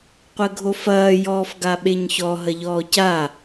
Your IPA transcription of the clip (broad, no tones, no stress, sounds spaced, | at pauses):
qʷ ɘ ɡʱ o f ɐː j ɔː f ɡ a ɓ e ɲ ç ɔ ɦ ɐ ʎ ɔː c a